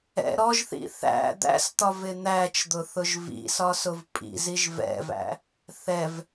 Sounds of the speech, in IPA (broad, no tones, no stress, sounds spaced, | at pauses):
ɛ̰ ɾ ɔ ʒ θ ḭ θ æ̰ d̪ æ̰ s t̪ ɒ v ɪ n̪ æ t͡ʃ d̪ ʊ θ ʊ ʒ v ḭ s ɒ s ʊ v pʼ ḭ z i ʒ v ɛ̰ v æ̰ | θ ɛ v